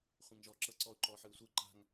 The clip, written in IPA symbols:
χʷẽŋʒɔːǁɤ ǀɔʊ̯ǃɔːħɯʊ̯sʷɯ ǃa̤ŋ

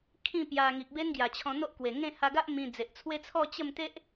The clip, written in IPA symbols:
kʰĩ˥˧pja˧ ŋi˨k̚be˦nɡja˨˩t͡ɕʰɔ̃˧ n̪o˦ʔkwe˨˩ŋẽ˥˧ ha˧ɡa˦ʔ mĩ˧ d͡ze˨ʔt͡sʰwe˦t͡sʰɔ˥˧ t͡ɕə˥˧m t̪e˦ʔ

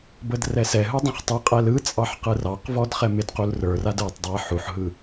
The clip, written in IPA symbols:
bədrɛsɛɦɯ dˤũχtˤɯqʼɛl ɯ t͡sʼɑħqɯrɑqvɔd χɛmɪdqul rə˞rad ə˞tˤ dˤɛħuħɦɯ

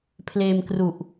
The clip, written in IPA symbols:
pʰleː˧mkru˨˩ʔ

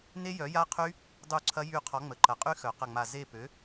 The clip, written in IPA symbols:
ne˦˥jœ˨˥ja˦˥qʰy˦˥ | dˤu˦˨ǀʰɐ˦˥jy˦˨ qʰɔ˨˥ ŋ͡mə˩˧˩ǃɐ˨˩˦qʼy˦˥ xœ˨˩˦qɐ˦˨ŋ͡ma˦˨ ze˦˨pø˨˥

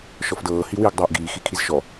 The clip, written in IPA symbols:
ʃɔfdɤː hiwiːɡdˤɤːʔɡiː xikʰizʃɔ

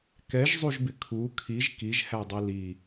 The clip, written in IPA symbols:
kɛʒzˤuʒbɪ kʰu kʰiʒ kiʒhædˤi li

